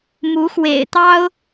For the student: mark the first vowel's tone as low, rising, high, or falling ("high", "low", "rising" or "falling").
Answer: rising